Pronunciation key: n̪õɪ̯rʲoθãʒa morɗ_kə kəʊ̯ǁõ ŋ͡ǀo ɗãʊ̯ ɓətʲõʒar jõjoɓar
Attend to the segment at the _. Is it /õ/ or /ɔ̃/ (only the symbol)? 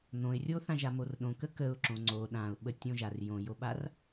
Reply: õ